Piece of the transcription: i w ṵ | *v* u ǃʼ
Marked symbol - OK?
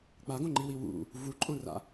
yes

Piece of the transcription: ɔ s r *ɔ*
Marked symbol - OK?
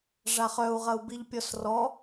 yes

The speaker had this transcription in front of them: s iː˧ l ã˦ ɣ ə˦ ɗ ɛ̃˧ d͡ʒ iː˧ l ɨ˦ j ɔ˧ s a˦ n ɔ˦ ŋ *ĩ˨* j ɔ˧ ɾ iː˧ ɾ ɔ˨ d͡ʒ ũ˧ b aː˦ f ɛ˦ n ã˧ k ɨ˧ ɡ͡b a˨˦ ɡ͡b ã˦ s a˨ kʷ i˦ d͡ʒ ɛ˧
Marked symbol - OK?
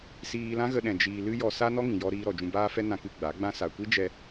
yes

